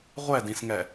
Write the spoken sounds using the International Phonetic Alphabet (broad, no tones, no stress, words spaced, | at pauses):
ʁʷɛdĩsŋɛ